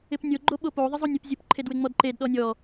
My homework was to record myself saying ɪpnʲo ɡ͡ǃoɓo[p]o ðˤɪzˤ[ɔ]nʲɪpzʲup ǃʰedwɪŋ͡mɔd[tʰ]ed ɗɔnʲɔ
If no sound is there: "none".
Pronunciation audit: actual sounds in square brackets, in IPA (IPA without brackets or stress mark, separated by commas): p, o, ǃ